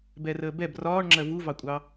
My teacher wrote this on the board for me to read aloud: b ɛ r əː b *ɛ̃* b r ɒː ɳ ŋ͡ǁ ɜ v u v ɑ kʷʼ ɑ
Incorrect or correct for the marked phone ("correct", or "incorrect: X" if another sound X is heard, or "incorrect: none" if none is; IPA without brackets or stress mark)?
incorrect: ɛ